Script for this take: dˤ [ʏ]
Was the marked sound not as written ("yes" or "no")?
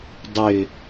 no